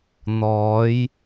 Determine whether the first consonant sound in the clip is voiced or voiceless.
voiced